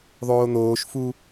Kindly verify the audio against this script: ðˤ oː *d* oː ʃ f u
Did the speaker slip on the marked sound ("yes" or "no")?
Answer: yes